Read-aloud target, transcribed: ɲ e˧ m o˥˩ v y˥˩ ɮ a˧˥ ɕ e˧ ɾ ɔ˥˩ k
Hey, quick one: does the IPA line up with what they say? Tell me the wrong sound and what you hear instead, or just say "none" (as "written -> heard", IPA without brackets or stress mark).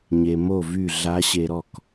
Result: none